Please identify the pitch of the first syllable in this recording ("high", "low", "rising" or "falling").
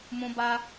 high